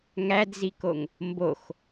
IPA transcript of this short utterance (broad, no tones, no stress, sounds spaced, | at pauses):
ŋ æ d z i k o ŋ | m b o x